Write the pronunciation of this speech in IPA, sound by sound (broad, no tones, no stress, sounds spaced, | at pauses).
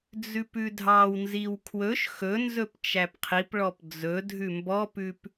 d͡z ʉ p ʉ dʱ ɑ w n z i w kʰ w ɵ ʃ x ɵ n z ɵ p t͡ʃ æ p qʰ i p ɭ ɔ p d͡z ɵ dʱ ʉ m b ɔ p ʉ p